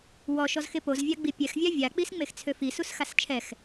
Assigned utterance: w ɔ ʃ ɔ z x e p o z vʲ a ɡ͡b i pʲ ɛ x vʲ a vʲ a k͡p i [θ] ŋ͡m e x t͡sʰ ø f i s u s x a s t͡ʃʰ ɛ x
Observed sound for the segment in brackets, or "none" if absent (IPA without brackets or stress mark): s